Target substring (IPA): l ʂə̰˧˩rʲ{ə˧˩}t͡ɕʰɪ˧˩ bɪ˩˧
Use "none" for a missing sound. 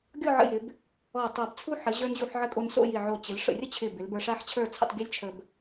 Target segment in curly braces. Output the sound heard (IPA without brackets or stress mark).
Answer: ə˥